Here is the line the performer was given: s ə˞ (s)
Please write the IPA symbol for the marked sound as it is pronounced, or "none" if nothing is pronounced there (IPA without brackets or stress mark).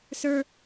none